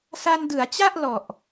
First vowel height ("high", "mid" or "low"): low